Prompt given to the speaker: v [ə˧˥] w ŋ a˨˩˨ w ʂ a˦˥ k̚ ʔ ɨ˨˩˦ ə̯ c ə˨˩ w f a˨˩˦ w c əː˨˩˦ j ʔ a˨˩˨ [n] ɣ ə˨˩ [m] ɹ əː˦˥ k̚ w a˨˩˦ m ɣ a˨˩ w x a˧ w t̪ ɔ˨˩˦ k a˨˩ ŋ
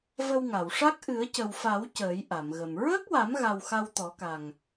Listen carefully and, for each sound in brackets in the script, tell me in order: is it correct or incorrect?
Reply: incorrect, incorrect, correct

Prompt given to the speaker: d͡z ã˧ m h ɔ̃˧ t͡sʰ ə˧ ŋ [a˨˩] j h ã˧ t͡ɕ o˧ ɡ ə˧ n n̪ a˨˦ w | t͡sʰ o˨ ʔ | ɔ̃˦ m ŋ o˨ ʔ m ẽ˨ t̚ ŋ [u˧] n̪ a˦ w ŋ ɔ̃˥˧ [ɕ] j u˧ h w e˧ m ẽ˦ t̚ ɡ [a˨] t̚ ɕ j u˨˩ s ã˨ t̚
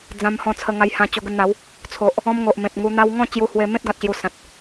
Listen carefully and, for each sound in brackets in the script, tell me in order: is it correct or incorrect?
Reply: incorrect, correct, incorrect, correct

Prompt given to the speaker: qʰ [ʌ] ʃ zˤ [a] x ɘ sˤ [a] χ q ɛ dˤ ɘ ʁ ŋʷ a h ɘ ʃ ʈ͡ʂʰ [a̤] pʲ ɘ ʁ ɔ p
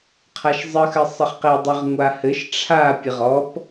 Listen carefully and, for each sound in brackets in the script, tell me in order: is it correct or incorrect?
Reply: incorrect, incorrect, incorrect, incorrect

